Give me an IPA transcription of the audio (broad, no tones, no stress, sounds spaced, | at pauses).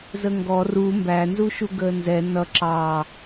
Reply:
z ə ŋ ɡ ɔ r u m b æ n z u ʃ u ɡ əː n z ɛ n ʌ ǁ ɑ